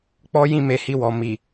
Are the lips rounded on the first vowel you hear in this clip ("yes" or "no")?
yes